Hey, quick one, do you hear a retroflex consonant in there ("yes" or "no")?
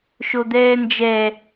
no